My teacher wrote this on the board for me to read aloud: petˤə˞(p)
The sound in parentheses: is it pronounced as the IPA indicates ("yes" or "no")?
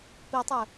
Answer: no